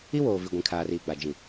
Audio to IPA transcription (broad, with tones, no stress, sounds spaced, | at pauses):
i˦ w oː˨ v i˨ ɡʷ ĩ˨ kʰ aː˨ r iː˨ ɡ͡b a˨ d͡ʒ ĩ˨